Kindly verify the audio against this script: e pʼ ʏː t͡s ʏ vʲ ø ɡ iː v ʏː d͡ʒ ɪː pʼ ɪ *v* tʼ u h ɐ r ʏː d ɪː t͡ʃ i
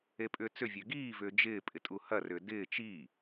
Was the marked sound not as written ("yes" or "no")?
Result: yes